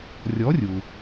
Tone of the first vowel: rising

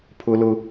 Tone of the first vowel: high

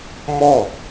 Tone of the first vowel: falling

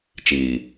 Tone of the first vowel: low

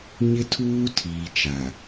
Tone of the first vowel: high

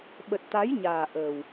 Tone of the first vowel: low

